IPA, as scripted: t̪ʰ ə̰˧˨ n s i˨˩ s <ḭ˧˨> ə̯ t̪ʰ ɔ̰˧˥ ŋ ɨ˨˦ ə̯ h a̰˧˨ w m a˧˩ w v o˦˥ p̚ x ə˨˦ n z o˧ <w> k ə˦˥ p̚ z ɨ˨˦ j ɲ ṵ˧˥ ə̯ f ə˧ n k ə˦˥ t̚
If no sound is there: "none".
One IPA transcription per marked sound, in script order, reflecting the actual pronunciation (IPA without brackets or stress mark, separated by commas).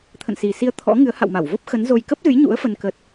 i˧, j